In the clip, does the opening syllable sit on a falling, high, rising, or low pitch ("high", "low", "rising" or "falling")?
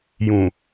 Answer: low